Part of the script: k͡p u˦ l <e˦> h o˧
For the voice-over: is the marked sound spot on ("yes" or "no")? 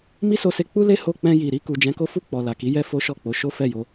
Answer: yes